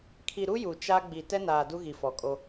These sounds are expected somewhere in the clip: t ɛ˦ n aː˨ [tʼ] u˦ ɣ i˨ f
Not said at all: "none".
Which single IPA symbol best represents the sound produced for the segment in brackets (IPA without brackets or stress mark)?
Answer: d